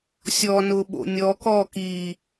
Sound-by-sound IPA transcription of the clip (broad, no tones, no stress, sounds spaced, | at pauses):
sʲ ɔ n ʊː ɓ o̰ nʲ ɔ k ɔː k iː